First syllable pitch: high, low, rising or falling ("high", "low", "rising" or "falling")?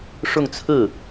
falling